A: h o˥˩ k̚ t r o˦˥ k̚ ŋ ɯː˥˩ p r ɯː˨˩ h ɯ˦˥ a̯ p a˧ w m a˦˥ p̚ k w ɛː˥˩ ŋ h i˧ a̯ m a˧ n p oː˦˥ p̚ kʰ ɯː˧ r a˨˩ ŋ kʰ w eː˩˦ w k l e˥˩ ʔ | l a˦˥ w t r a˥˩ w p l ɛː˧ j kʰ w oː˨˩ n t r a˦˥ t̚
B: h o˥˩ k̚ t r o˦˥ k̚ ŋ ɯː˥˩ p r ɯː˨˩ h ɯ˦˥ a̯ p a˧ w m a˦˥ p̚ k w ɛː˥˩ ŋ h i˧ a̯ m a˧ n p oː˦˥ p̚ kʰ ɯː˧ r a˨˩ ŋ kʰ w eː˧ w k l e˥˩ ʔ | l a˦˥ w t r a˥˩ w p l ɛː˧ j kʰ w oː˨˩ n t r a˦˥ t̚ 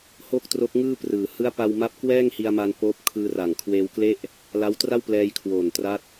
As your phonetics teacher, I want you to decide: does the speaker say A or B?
B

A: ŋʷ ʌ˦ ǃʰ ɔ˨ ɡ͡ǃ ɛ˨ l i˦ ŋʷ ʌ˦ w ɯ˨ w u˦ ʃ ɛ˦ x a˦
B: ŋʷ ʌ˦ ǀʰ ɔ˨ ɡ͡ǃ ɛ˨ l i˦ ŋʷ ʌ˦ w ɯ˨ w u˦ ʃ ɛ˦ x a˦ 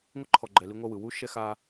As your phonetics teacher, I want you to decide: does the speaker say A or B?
A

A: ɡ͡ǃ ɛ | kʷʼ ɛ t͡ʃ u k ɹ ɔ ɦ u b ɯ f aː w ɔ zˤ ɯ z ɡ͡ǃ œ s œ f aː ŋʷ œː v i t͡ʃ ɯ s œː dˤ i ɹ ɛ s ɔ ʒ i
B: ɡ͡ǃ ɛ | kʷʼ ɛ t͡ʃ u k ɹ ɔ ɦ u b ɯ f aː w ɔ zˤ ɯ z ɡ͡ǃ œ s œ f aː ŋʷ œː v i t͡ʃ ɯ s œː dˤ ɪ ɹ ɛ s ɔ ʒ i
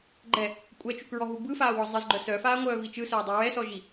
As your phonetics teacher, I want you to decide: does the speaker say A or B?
A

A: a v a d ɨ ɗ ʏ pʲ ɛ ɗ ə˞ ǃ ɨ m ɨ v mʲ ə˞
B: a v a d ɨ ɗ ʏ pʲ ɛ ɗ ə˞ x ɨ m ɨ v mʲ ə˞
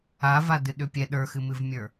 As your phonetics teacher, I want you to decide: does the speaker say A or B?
B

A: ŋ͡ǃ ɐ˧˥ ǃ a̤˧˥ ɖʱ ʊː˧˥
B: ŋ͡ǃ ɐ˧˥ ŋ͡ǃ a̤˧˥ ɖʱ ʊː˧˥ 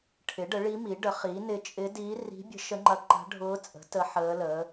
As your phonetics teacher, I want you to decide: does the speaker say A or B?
A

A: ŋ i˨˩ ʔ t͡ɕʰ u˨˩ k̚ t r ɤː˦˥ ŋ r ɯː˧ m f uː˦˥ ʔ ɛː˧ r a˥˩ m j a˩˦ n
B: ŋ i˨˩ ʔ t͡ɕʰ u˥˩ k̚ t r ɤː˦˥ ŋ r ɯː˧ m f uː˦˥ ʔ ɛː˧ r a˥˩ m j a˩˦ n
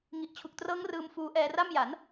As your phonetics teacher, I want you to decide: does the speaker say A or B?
A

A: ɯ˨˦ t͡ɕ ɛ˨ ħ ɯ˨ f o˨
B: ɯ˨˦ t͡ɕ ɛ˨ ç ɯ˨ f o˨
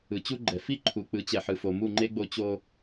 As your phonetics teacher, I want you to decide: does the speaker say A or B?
A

